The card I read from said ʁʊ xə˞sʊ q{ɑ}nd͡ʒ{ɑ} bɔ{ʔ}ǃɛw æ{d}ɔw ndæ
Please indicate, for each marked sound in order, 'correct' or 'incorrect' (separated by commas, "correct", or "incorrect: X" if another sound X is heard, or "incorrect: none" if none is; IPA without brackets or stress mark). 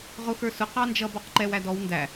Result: correct, incorrect: ʌ, incorrect: q, correct